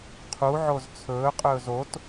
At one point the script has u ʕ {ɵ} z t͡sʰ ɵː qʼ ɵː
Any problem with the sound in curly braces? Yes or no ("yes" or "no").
yes